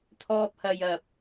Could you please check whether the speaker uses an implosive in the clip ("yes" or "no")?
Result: no